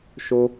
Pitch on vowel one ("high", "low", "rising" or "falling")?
high